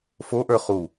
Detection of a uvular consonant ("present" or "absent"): present